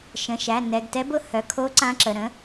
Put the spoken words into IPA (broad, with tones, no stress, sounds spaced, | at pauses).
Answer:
ʃ ə̃˩˧˩ ʃ æ˩˧˩ n ɛ˩˧˩ ɡ t ɛ˧˥ b ʊ˧˥ h œ˩˧˩ kʰ o˧˥ ǀ ã˧˥ ǁ ə˩˧˩ ɾ ə̃˧˥